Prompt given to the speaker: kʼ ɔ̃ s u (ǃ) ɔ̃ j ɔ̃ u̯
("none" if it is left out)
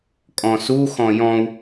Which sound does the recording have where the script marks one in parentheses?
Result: x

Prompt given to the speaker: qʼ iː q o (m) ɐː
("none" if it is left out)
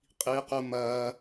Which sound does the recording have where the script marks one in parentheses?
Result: m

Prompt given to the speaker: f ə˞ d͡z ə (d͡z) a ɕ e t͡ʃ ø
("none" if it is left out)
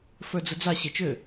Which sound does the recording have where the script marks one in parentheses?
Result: d͡z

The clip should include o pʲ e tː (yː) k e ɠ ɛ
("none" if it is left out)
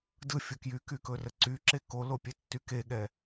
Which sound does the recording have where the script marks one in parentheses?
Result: y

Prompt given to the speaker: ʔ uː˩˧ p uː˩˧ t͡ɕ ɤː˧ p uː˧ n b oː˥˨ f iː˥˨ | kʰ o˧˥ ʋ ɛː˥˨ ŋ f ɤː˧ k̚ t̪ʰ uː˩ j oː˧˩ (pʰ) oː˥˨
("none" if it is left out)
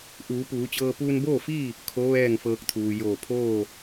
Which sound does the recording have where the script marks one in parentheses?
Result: pʰ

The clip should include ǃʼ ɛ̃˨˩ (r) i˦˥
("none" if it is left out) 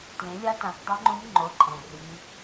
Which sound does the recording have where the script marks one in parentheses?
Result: r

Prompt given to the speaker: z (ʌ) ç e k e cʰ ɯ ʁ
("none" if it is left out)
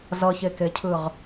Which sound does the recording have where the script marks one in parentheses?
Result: ʌ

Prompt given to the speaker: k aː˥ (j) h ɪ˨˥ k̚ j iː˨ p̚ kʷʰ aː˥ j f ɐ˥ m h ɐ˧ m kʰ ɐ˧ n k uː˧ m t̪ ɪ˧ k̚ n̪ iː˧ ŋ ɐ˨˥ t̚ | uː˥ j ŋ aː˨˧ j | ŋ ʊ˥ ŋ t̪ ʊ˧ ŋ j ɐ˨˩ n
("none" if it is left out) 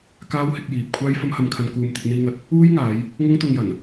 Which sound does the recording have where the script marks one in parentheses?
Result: w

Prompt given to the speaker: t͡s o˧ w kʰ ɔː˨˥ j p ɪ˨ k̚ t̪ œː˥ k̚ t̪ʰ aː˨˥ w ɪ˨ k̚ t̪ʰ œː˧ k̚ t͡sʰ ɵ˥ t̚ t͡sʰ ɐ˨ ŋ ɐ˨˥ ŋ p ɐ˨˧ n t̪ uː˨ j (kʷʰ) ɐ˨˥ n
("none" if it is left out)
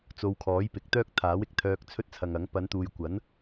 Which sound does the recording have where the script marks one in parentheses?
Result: kʷ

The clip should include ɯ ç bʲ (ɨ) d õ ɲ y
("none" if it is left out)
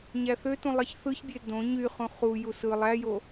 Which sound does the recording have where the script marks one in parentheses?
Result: e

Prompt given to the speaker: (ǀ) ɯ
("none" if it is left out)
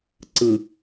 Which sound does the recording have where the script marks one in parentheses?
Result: ǀ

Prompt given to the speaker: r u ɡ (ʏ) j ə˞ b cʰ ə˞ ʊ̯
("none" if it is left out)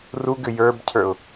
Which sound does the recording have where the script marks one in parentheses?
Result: ʏ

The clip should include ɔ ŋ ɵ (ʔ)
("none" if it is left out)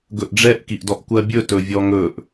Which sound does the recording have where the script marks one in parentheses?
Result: ʔ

